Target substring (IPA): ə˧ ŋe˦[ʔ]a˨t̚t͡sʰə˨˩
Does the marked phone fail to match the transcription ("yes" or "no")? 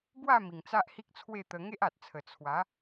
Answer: no